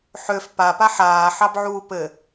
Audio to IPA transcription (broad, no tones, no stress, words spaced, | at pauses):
ħøf papa ħaːħɑbʕuː pɘ